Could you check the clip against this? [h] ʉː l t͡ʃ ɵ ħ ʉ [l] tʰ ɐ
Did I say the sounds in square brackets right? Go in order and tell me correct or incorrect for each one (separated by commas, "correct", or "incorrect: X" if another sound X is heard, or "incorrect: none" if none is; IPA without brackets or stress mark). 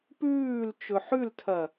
incorrect: p, correct